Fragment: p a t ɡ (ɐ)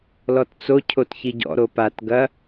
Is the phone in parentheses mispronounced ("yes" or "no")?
no